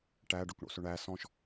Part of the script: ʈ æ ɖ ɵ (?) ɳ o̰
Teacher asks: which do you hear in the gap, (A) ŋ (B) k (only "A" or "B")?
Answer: B